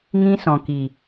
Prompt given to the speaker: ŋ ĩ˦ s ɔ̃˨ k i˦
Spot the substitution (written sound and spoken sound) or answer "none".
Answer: i˦ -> i˨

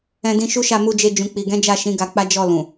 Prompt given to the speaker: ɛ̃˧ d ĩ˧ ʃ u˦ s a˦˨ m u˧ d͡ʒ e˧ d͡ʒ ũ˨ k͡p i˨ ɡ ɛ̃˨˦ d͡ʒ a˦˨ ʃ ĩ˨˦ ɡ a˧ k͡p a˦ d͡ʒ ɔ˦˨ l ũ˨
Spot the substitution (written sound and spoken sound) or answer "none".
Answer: s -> ʃ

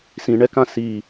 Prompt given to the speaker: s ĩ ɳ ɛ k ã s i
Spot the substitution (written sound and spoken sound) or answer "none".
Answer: none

